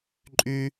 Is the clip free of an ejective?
no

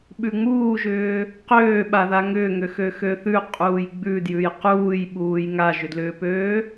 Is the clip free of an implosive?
no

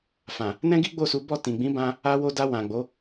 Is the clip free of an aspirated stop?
yes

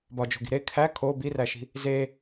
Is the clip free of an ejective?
yes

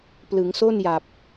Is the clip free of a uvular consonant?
yes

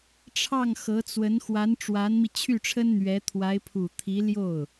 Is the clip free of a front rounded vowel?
no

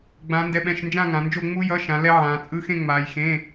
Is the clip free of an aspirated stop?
yes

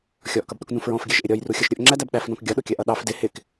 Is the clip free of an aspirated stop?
yes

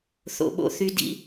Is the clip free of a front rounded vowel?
no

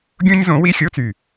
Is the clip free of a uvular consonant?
yes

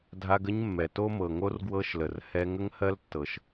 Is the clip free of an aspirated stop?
yes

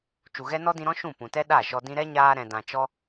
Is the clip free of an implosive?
no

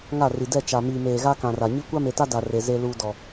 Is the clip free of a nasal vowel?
no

